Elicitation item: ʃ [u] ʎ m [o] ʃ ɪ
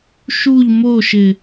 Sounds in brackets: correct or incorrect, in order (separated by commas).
correct, correct